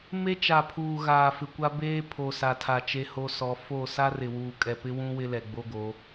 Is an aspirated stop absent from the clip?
no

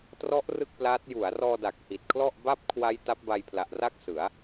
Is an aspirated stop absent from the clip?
no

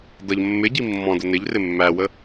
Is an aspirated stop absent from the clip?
yes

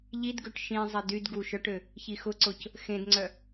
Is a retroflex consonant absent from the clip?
no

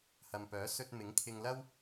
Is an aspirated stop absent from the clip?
no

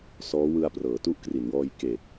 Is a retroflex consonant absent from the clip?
yes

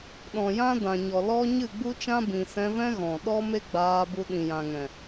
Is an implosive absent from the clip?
no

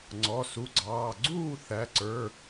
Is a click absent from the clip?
no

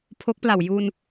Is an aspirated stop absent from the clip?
no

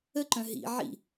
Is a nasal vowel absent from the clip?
no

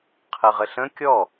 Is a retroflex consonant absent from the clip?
yes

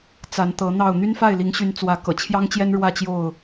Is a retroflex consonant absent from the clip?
no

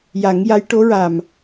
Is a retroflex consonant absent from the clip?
no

